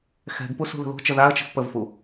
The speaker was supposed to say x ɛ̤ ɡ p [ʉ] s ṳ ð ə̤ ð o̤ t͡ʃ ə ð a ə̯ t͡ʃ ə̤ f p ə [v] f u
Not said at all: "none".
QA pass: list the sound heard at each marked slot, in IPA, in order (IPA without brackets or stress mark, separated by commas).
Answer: u, v